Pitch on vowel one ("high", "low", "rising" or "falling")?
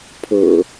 low